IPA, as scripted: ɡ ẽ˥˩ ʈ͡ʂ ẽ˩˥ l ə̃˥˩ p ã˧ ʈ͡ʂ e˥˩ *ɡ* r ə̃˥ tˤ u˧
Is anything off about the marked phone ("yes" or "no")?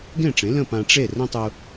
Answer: yes